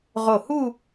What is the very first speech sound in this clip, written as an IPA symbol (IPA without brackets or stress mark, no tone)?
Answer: ʁ